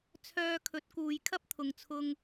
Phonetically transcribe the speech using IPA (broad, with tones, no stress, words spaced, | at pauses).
t͡sʰœː˧kʰɵ˨˥t̚kuː˨j kʰɐ˥p̚t̪ʰʊ˨ŋt͡sʰʊ˧ŋ